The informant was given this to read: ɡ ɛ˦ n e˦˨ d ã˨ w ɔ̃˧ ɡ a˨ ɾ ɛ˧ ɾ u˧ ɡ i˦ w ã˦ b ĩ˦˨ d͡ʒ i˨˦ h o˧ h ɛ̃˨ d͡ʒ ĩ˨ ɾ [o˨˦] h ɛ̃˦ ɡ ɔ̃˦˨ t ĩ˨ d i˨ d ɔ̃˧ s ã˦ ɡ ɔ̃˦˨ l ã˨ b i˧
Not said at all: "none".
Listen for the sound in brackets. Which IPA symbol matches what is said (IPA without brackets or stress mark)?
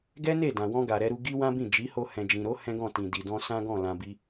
o˨˦